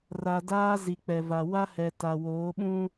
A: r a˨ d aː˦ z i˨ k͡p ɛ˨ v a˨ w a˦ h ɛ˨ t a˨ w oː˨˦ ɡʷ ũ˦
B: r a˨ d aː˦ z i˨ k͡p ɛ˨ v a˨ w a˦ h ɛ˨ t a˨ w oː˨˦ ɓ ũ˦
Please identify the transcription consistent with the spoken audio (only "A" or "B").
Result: B